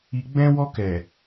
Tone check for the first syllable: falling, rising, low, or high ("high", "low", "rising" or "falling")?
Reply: low